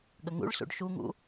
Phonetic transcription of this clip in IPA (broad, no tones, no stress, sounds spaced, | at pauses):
ɠ ə ŋ ṵ ɭ s ṵ ɖ ʃ u ŋ ṵ